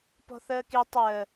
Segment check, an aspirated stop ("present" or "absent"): absent